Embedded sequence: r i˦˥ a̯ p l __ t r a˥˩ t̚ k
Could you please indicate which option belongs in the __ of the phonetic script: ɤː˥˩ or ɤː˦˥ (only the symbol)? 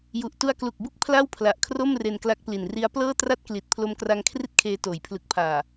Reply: ɤː˥˩